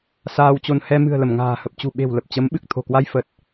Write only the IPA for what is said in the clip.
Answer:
s aː˧ w t͡ɕ o˧ n h ɛ˧ m ɨ̤˨˩ ə̯ l ə˧˩ m ŋ a̤ː˨˩ h ə˨˩ p̚ t͡ɕ ṳ˨˩ ɓ e̤˨˩ w l ə˨˩ p̚ t͡ɕ ə˨˦ m ɓ ɨ˨˩ k̚ t̪ʰ o̤˨˩ k w a˧ j f ə˨˩ t̚

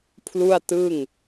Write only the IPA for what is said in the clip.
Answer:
pʰ l u˥˩ a̯ t ɯ˥˩ ŋ

